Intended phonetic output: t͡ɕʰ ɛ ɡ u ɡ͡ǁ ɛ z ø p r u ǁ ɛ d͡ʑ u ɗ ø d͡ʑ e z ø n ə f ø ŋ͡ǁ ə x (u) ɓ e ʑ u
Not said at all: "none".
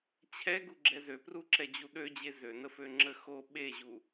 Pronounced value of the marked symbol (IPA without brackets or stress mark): o